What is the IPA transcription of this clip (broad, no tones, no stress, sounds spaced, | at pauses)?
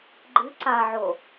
ɡ͡ǃ ɨ ǀ a ʕ o